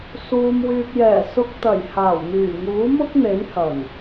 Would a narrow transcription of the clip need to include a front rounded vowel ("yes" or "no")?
yes